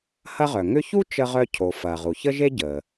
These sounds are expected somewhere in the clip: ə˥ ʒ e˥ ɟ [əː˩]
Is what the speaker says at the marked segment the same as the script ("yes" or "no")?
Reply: yes